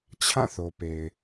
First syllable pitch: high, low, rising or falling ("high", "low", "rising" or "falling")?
falling